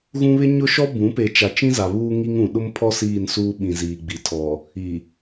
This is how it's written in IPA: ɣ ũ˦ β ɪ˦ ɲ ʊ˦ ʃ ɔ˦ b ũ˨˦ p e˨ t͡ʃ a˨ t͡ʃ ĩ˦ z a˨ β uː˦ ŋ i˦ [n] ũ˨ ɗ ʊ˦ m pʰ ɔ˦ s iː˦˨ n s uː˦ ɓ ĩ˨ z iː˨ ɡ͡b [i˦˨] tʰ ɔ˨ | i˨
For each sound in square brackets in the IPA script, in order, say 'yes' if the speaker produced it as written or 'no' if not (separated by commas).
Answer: no, no